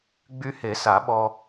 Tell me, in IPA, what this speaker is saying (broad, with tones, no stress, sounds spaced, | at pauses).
ɡ͡b y˧ h e˨˩˦ s a˨˩˦ ɓ ɔ˧